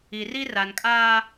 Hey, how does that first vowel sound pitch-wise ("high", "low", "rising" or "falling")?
low